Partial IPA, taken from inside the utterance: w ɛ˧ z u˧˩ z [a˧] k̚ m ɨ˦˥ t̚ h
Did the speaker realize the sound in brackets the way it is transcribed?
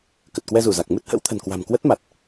no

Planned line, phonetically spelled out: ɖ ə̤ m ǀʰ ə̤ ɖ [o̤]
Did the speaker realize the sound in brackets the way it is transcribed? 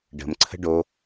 no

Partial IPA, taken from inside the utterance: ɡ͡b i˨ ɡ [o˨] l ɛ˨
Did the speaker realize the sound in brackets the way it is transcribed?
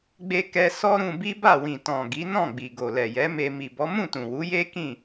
yes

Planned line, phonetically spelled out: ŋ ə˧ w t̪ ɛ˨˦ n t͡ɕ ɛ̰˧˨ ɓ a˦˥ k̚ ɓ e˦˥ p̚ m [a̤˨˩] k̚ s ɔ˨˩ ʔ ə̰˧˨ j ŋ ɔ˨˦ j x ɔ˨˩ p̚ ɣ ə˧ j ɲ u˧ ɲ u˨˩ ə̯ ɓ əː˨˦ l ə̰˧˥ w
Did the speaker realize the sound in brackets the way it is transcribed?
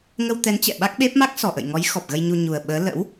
no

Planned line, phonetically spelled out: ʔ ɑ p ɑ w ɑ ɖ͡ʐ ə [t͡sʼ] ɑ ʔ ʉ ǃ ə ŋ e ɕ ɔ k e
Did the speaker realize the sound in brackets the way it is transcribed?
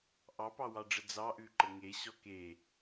no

